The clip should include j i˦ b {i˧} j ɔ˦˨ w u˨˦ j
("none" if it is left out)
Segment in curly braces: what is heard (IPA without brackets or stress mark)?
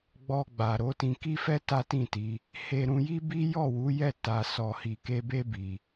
i˦